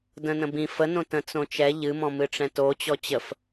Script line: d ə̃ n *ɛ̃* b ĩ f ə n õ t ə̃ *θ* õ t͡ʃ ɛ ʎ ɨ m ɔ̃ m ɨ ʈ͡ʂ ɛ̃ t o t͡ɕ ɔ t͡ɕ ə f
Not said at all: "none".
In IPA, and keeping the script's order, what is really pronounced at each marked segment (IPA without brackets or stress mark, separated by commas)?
ə̃, t͡s